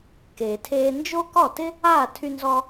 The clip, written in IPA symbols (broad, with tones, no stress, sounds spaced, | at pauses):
k eː˩ tʰ eː˧ n d͡ʒ o˥ k ɔ˥˩ t ɪ˥ | aː˥˩ tʰ y˧ n z ɔ˧